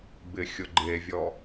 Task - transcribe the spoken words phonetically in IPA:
b ɪ xʲ ʊ ɡ͡ǃ e vʲ ɔ

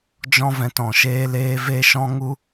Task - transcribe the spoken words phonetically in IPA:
d͡ʒ ɔ̃˦ v ɛ̃˧ t ɔ̃˨ ʃ eː˧ l eː˧ v e˦ ʃ ɔ̃˦ ŋ u˦

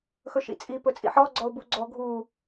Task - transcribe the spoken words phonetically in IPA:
x ɵ ʃ ḭ t͡sʼ i p ɵ t͡sʼ ḭ ħ ɔ ɡ͡ǀ ɔ ʊ̯ b u ɡ͡ǀ ɔ ɡʱ u

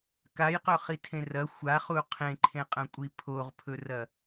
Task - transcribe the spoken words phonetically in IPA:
k a j q ɵ χ i tʰ ẽ r ɐ xʷ a χ u qʰ ẽ ǃʰ ẽ qʼ ɐ̃ kʷʼ i pʰ o ʁ pʰ ɵ r ɐ

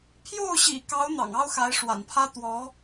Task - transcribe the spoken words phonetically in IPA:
pʰ j o˥˩ ʊ̯ ɕ ḭ˨˩ k ɑ˧˥ ʊ̯ n̪ ɑ̰˨˩ ŋ ɑ˥ ʊ̯ x a˧˥ ɪ̯ ʂ w a̰˨˩ n pʰ ä˥ t̪ w ɔ˧˥

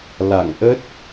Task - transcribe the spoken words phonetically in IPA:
l a̰˧˨ ŋ ʔ ə˦˥ t̚

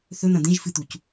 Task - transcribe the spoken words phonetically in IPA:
θ ɵ n̪ ɐ̃ d̪ ẽ ʒ f ɨ t̪ u c

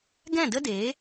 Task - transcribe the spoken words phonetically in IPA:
ɡ ɛ̃˦˨ d ə˦ d eː˨˦

